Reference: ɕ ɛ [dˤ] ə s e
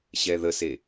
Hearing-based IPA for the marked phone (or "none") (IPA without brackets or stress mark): ð